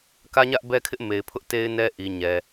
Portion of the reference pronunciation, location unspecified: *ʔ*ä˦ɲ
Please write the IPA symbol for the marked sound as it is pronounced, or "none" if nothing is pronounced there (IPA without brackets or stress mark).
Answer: k